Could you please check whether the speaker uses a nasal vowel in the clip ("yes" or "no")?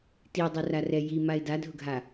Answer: no